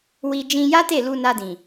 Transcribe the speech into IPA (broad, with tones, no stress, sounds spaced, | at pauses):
w i˧ d͡ʒ ĩ˧ j a˦ t e˦˨ l u˧ n a˧ d ĩ˨